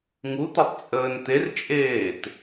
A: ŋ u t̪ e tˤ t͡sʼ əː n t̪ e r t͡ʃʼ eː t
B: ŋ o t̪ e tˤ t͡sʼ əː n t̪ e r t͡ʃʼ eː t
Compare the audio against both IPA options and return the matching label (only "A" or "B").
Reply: A